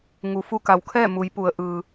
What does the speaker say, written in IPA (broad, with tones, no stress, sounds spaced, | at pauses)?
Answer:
ŋ u˩ f u˧ k a˩˧ w kʰ ɛː˥˨ m u˩˧ j p u˩˧ ə̯ ʔ ɯː˩